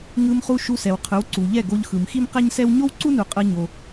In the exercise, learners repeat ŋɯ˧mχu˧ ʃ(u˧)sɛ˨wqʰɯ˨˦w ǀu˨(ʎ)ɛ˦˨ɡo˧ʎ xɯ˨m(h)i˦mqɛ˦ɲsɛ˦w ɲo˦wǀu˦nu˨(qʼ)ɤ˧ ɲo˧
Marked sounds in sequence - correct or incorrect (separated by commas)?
correct, correct, incorrect, correct